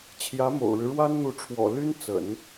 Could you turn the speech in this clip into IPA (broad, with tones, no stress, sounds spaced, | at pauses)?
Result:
t͡ɕʰ j ä˧˥ m o̰˨˩ ʊ̯ ɻ ɻ̩˦ ɻ w a˥ n n̪ u˧˥ ʈ͡ʂʰ w ɔ̰˨˩ l y˥ n t͡s ə̰˨˩˦ n